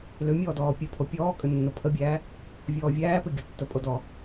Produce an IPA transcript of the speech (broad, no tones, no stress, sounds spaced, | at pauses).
l ʏ mʲ ɔː d ɔː pʲ ʌ pʰ o pʲ ɔː kʼ ʏ nː o pʰ ə bʲ æː | vʲ ɔː vʲ æː p ʏ ɡʲ ʌ tː ə pʼ o d ɔ